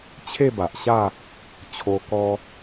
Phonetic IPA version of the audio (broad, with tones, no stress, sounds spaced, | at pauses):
t͡ɕʰ e˥˧ b a˨ ʔ ɕ a˥˧ | t͡ɕʰ o˧ k ɔ˧